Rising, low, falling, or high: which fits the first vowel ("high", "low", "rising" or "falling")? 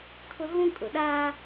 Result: high